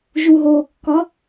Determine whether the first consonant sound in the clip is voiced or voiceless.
voiced